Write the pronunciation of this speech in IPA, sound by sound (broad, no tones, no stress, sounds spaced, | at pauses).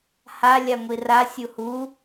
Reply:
h a lʲ a ŋʷ i r a sʲ u h u